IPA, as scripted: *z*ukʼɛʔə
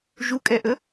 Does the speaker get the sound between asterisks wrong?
yes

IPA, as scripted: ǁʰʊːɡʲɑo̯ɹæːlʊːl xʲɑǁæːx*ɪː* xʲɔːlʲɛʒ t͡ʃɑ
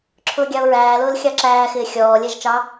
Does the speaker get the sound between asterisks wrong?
no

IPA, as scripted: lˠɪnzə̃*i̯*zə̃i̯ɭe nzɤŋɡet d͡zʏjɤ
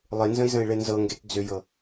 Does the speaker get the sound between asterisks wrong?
no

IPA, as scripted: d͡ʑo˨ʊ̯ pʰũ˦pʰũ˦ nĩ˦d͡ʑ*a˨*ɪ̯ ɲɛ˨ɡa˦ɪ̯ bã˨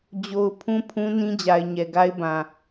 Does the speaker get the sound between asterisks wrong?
no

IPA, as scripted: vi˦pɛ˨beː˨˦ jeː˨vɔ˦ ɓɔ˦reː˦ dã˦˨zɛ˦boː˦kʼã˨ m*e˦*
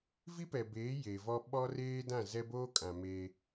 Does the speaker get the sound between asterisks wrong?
no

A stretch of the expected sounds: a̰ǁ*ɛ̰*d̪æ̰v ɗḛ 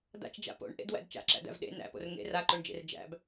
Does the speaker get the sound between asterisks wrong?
yes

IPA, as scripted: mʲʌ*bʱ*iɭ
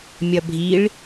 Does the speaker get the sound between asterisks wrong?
no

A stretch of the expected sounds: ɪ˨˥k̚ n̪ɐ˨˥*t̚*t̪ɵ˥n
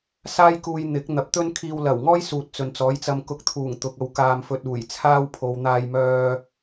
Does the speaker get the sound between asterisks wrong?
yes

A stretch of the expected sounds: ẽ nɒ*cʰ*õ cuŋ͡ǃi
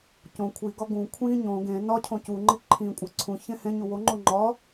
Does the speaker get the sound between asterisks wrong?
no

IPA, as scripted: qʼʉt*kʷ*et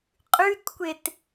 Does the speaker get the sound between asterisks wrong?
no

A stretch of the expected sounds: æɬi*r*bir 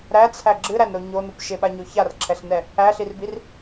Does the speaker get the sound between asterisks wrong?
no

